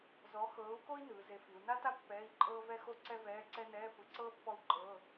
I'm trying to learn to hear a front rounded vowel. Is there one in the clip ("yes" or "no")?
no